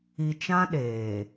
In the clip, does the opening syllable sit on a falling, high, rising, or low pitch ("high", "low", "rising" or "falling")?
low